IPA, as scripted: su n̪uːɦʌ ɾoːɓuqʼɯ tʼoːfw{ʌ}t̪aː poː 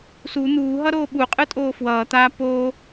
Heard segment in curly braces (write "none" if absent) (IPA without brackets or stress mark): ʌː